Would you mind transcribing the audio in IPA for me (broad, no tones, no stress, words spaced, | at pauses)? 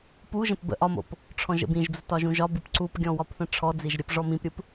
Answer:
puʒə̃p bə̰ ʔɒmo̰p | ʈ͡ʂʰɔ̃ʒə̰bĩʒd͡zə tɒʒũʒɒbɯp ǀupɡʲɔ̃ wɒpθə̃ʈ͡ʂʰɔd͡ziʒ ɾʲəp ʐɔmĩpɾʲɯp